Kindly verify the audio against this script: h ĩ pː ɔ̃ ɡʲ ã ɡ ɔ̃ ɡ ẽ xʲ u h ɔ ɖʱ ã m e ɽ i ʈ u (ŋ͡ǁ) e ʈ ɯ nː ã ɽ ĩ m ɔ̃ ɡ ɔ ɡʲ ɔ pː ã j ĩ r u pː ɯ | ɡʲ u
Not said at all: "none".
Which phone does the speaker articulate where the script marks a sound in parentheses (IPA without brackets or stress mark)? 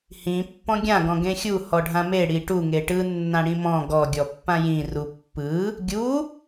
ŋ